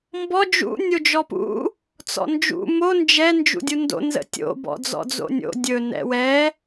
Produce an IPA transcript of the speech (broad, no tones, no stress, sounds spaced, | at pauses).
m b ɔ d͡ʒ ṵ nʲ o d͡ʒ ɔ p ṵ | t͡s ɔ̰ n d͡ʒ ṵ m o n d͡ʒ ɛ n d͡ʒ ṵ dʲ u n d o̰ n z ə̰ tʲ o̰ b ɔ̰ d͡z ɔ̰ d͡z o̰ nʲ o̰ dʲ ɵ n ɛ̰ w ɛ